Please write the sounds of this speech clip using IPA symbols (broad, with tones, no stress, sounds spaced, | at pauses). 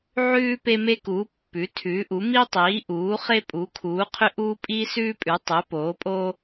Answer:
ʕ ʉː˦ p e˦ m e˦ k uː˩˥ pː ʉ˩˥ tʰ ʉː˩˥ ʔ u˩˥ m i˦ tˤ iː˩˥ ʔ uː˩˥ χ e˦ pʼ u˩˥ kʰ uː˩˥ qʰ ʏ˦ ʔ uː˦ pʼ iː˦ s ʉː˦ pʼ ʉ˩˥ tˤ ʏ˩˥ p oː˩˥ pʼ o˦